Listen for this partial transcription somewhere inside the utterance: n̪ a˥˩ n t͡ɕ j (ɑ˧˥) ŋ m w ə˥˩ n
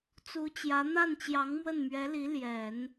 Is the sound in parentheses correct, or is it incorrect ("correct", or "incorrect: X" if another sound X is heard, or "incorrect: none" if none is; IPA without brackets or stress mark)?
correct